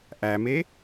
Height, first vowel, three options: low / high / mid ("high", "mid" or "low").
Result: low